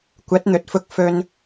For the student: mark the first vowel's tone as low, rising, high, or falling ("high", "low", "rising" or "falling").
rising